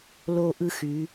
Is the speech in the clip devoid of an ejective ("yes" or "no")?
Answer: yes